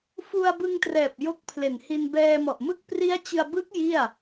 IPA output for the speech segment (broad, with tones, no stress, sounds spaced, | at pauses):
f u˧ a̯ b ɯ˧ ŋ t r ɛː˨˩ p̚ j o˦˥ k̚ pʰ l e˨˩ n h i˧ n b ɛː˧ m ɔ˨˩ ʔ m ɯ˥˩ k̚ p r i˦˥ a̯ t͡ɕ ɯ˧ a̯ b ɯ˦˥ k̚ j i˥˩ a̯